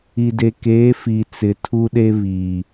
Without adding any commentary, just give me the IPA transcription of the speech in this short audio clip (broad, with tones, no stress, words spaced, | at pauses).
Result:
i˨de˨keː˨˦ fi˨t͡sɪ˨tʰu˦ɗe˦ βi˨